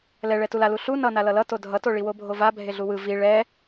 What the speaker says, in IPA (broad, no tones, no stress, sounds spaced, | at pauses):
l ɛ ɭ ɛ t u l a l u ɬ u n ʌ n a l ʌ l ʌ t o dʱ ʌ t o ɭ i w o bʱ o v a bʱ e ɮ u w ɯ v i ɭ ɛ